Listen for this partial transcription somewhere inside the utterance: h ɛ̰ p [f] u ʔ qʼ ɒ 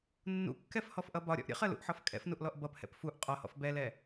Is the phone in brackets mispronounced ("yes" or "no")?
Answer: no